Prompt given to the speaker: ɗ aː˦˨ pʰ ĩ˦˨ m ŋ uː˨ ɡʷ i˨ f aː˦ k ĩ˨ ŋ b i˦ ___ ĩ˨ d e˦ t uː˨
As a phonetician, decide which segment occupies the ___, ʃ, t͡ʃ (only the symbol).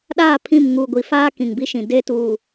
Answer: ʃ